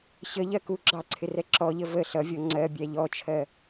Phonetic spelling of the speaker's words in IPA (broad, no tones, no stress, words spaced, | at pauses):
ɕəʎɜ ku ɡ͡ǁɑǀʰɪ rɛǁɔʎə və ɬʌvʲɔ ŋ͡ǀɜ bʲæʎɔt͡ʃʰɜ